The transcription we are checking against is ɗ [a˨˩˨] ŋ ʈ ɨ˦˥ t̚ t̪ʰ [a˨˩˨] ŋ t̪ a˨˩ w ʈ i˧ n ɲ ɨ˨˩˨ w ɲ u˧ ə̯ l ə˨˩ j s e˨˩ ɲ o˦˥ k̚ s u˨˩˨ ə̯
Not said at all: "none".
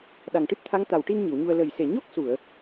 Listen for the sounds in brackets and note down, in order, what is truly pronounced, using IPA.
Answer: a˨˩, a˧˥

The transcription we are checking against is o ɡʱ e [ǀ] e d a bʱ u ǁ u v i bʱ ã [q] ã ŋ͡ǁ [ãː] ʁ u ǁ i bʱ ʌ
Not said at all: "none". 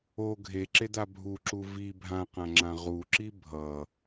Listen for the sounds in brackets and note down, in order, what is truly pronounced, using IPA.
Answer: ǁ, q, ã

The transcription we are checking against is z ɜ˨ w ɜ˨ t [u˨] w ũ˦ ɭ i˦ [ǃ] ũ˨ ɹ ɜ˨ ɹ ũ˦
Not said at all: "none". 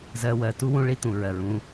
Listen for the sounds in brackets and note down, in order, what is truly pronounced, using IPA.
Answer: u˦, t̪

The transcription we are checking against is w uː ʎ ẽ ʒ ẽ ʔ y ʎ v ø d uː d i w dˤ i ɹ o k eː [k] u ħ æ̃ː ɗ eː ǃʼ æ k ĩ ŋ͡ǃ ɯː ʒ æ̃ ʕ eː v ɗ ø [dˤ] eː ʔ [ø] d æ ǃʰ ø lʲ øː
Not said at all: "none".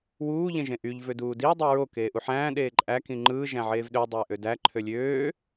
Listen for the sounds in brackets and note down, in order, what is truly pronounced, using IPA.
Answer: ʔ, dˤ, ø

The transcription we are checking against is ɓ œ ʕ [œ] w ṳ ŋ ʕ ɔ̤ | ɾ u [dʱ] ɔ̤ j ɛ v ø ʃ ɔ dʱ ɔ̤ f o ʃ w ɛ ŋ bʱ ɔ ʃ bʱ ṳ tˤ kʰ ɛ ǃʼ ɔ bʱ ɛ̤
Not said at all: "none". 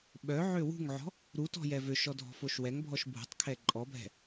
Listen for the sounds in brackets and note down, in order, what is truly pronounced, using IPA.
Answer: ø, t

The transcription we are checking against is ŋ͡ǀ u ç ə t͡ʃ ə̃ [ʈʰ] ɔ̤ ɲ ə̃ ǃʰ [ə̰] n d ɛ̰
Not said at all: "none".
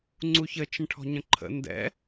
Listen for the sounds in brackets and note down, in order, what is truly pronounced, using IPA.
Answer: ʈʰ, ə̰

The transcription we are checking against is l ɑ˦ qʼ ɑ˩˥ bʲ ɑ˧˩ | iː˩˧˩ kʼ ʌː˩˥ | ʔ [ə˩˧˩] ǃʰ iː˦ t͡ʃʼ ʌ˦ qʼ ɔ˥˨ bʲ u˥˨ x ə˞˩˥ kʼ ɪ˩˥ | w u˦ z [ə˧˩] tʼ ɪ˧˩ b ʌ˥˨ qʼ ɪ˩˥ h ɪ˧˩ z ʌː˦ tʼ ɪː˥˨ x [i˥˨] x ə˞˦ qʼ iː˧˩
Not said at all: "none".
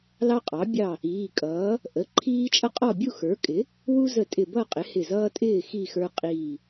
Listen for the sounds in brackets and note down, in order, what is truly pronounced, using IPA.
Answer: ə˩˧˩, ə˧˩, i˥˨

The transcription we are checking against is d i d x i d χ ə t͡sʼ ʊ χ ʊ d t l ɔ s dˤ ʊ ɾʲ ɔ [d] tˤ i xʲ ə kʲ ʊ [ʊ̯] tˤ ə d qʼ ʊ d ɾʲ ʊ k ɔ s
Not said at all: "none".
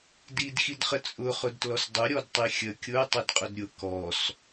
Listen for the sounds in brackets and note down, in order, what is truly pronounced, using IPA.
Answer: d, ə̯

